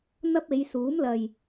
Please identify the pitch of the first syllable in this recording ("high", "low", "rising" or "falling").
high